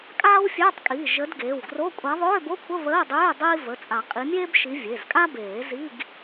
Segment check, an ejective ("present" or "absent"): present